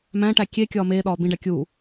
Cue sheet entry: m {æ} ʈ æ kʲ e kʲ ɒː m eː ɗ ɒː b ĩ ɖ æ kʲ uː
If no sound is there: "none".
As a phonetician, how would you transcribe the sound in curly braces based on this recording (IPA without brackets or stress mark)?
æ̃